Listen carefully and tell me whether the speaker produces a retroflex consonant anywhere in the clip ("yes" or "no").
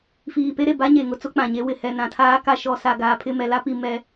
no